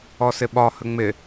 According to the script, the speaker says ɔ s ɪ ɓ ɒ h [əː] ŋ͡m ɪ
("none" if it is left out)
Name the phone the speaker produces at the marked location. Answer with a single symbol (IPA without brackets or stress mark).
ə